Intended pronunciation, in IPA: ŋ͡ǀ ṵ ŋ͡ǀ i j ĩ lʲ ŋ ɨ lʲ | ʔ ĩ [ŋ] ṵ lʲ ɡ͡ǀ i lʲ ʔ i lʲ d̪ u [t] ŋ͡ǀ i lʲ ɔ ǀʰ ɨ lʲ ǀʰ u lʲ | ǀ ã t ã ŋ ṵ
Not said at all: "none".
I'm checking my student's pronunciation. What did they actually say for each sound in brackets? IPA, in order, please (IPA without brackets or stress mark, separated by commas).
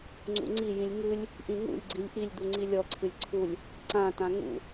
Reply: ŋ, none